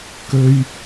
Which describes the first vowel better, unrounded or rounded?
rounded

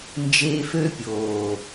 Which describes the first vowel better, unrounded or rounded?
unrounded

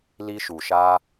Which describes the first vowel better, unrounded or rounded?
unrounded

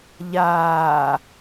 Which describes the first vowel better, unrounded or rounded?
unrounded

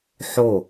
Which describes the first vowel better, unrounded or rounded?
rounded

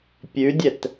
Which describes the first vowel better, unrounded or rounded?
rounded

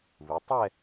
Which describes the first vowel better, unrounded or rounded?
unrounded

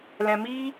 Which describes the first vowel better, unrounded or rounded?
unrounded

